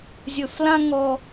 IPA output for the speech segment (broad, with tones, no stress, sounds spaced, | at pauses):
zʲ ɵ˨ f l ã˦ ŋ ɔ˦